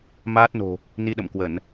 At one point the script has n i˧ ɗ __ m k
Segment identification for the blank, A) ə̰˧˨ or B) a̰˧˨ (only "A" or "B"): A